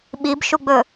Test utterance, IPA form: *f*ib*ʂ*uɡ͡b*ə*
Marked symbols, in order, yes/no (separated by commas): no, no, no